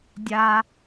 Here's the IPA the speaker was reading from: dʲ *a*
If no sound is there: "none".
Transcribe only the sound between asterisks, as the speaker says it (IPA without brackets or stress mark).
a